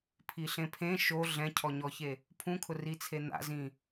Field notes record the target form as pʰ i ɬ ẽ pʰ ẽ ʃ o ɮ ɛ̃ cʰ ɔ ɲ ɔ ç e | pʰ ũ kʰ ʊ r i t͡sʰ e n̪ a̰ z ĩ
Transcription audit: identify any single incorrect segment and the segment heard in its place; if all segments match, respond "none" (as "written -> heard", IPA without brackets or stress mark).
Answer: none